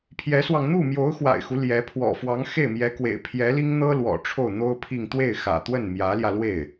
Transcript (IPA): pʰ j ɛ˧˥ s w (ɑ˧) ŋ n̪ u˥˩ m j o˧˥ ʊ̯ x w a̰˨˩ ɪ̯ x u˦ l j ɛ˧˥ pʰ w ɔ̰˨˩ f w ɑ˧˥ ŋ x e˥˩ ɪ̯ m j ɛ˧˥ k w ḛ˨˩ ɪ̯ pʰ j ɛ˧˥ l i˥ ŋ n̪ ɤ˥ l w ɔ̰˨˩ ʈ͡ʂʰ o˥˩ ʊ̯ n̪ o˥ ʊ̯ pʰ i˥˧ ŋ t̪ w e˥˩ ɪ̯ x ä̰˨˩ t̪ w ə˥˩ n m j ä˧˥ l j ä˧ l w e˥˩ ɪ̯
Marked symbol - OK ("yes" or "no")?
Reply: yes